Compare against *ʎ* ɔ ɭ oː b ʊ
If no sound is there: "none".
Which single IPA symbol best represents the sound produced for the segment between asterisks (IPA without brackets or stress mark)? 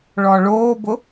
ɭ